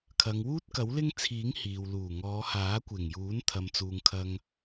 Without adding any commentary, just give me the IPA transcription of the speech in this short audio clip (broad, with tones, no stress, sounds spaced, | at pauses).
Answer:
kʰ ɐ˨˧ ŋ w uː˥ t̚ k ɐ˨˥ w l ɪ˥ ŋ t͡sʰ iː˨˥ ŋ h iː˨ w l uː˨˩ ŋ ɔː˨˧ h aː˨˥ kʷ ɪ˨˩ ŋ j uː˨˥ n t̪ʰ ɐ˨ m t͡s uː˨ ŋ kʰ ɐ˧ ŋ